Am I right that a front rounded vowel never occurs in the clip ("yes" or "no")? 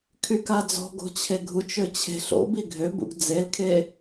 no